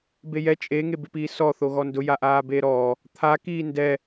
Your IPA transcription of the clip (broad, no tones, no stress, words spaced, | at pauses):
bejɛ t͡ʃʼe ŋebɪpiːsɔ θoɣɔndʊ jaʔaːbeːɾɔː | t̪ʰa kiːndɛ